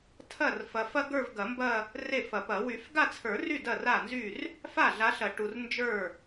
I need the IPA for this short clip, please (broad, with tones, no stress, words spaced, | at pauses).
tʰɐ˥˩rfɐ˨fɐ˥ɡə˞˥˧v ɡɐ˨˩˦mbɐ˥˧ | re˥˩fɐ˨˩˦pɐ˨˩˦ wy˨˩˦fɡa˥˧t͡sʰə˞˨˩˦ry˥˩ dɐ˥˩ra˥˩nzy˥˩r | fa˥˩ɮa˨˦ɬɐ˨˩˦ ʈu˨rnd͡ʒə˞˥˩